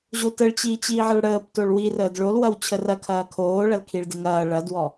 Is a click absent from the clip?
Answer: yes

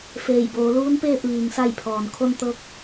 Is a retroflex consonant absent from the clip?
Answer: yes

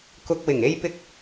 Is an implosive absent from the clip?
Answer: yes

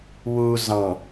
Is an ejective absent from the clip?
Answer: yes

